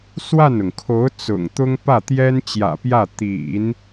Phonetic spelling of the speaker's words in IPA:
s w a˥˩ n ʊ˩ ŋ kʰ o˧˥ ʊ̯ t͡s ʊ̰˨˩ ŋ t̪ ʊ˥ ŋ p ä˥˩ t̪ j ɛ˥ n t͡ɕ j ä̰˨˩ p j ä˥˩ t̪ ḭ˨˩˦ n

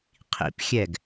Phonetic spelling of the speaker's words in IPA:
qʰ ḭ p xʲ ɛ ɡ

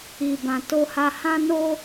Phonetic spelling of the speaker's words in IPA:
i˨ b ã˨ t o˧ h a˧ h ã˦ n o˦

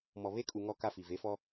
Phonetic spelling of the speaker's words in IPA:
m ɔ˨ β e˦ kʼ u˨ ŋ ɔ˦ k a˦ f i˨ v e˨˦ f ɔ˦

